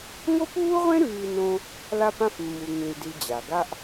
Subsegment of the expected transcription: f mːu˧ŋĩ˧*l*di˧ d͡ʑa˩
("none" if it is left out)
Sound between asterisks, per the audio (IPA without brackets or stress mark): l